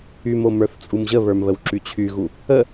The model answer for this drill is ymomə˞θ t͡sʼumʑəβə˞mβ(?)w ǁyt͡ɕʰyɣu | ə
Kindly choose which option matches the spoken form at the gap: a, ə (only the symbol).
ə